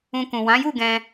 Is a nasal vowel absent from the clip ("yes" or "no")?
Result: no